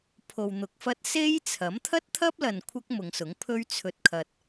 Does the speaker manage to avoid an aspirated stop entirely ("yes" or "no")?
no